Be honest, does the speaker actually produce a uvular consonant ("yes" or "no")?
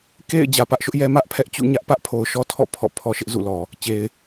no